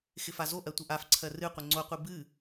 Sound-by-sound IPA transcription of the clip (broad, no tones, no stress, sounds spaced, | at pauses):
x ɪ f a z o ʔ ɜ tʷ ɪ ʔ a f ǀʰ ɜ r ɨ qʷ ɪ ŋ͡ǀ o qʷ ɨ b ɨ